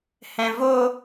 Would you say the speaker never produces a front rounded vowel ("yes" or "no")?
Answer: yes